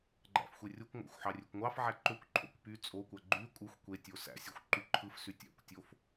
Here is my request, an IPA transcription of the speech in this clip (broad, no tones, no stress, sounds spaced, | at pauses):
ɡ͡ǃ æ̰ f xʷ e rʲ o kʷ ŋʷ æ̰ xʷ ħ ɑ rʲ ø kʷ ŋʷ ɑ f ʕ æ ǃ ø kʷ ǃʰ o̰ kʷ p y t͡sʼ o kʷ æ ɡ͡ǃ y kʷʼ ɯ xʷ kʷ e tʲ o s æ̰ sʲ o xʷ ǃ y ǃʰ ɯ f s y tʲ æ̰ kʷ tʲ o f